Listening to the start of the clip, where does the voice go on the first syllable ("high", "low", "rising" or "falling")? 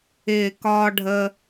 low